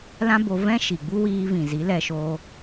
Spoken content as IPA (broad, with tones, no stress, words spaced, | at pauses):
lã˦bo˧ vɛ̃˦ ʃi˨ɡ͡bu˦wiː˧vĩ˨ zi˨˦lɛ˧ʃoː˧